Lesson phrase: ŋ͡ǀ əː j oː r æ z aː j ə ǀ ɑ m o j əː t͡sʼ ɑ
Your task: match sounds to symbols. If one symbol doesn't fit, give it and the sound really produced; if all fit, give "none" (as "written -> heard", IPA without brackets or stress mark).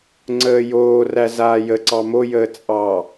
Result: none